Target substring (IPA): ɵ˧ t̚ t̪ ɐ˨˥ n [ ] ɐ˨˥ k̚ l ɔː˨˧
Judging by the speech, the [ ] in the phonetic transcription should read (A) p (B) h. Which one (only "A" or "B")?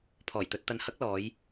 B